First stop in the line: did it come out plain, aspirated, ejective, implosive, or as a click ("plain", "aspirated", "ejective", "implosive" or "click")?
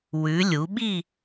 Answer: implosive